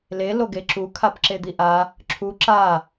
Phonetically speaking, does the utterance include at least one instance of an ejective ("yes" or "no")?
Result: no